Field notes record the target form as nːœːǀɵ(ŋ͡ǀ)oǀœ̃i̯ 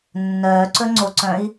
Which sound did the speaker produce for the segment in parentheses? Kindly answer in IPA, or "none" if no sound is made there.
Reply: ŋ͡ǀ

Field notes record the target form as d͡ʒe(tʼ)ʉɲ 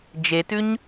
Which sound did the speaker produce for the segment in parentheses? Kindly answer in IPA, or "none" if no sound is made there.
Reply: t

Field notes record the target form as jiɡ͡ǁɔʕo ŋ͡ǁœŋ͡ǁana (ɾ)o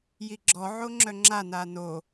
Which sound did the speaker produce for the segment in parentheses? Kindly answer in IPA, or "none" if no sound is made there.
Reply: n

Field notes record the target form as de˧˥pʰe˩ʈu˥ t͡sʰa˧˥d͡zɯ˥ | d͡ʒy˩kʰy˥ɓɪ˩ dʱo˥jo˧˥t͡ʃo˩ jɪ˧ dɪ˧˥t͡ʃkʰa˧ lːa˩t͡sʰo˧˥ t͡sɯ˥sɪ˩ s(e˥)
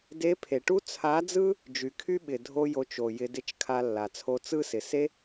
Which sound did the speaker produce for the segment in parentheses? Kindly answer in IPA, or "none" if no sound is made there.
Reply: e˥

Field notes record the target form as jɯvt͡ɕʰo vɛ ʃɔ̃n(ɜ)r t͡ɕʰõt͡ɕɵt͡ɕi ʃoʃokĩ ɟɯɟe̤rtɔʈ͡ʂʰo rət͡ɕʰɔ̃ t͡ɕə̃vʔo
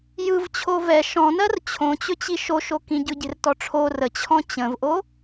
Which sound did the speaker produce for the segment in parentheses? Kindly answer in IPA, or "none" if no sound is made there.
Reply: ɜ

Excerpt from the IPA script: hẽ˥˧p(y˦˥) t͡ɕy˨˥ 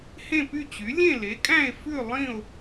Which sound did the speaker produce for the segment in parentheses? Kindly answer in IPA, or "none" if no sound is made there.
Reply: y˥˧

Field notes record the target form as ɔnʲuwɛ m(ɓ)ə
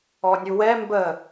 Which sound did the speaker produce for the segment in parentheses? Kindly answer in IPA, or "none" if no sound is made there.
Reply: b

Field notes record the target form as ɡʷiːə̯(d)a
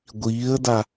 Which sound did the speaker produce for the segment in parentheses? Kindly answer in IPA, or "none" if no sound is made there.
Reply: d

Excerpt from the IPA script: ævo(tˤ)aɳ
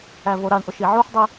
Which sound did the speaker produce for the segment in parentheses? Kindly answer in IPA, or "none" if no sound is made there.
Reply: ɾ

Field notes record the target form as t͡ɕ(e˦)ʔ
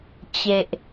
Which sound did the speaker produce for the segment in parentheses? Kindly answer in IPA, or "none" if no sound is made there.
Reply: e˨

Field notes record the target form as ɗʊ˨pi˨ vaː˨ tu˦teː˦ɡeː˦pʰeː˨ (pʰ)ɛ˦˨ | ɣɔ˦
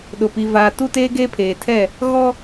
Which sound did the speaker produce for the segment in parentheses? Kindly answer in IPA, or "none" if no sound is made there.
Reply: tʰ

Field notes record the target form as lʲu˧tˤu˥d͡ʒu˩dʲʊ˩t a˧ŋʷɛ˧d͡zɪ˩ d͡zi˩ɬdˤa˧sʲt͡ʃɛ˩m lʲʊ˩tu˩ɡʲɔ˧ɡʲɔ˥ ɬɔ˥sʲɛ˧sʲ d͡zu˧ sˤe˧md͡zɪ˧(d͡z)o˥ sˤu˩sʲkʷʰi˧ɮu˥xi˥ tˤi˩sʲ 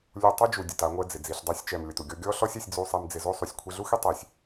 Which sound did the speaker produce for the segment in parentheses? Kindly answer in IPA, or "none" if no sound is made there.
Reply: z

